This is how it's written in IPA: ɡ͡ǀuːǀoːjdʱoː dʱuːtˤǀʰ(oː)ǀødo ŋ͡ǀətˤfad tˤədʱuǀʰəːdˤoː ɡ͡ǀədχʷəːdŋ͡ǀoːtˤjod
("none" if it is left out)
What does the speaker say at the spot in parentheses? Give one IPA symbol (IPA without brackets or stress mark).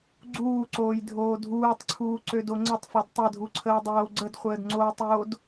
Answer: uː